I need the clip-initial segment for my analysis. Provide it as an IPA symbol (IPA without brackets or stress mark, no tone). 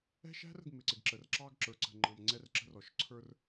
ɛ̤